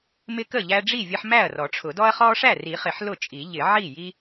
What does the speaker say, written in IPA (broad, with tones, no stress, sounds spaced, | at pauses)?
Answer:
m ɪ˦ k ə˥˩ ʎ æ˦ ɖ͡ʐ i˥˩ vʲ ə˦ ħ m æ˥˩ ɐ̯ r ɔ˨˩˦ ʈ͡ʂʰ ʊ˨˩˦ d ɔ˦ ɐ̯ χ ɔ˦ ʂ æ˥˩ r i˨˩˦ χ ɪ˨˩˦ ħ l ʊ˥˩ t͡ʃʼ i˨˩˦ ʎ ɪ˨˩˦ ʕ i˥˩ j i˦